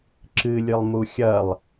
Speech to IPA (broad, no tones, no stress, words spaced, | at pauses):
ǁɨlʲɨlˠmu xʲɐlˠ